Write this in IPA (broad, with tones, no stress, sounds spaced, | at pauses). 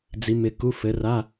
d͡z i˨˦ m ɪ˨˦ k u˧˥˧ f ɘ˨˦ r a˧˥˧